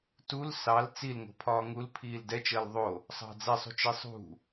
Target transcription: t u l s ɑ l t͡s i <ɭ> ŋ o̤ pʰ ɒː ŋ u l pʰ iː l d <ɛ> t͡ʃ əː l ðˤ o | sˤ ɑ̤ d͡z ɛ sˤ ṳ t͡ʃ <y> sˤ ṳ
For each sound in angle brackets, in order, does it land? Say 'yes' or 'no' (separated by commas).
no, yes, no